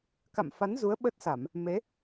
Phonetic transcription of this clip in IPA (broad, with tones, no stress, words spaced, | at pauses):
ka̰˧˨mfa˨˦n zu˨˦ə̯ɓə˦˥t̚sa˧˩˨m | me˨˦